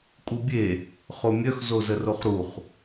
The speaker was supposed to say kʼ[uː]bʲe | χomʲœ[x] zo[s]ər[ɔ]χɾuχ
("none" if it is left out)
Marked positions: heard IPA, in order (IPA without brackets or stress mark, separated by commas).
u, x, z, o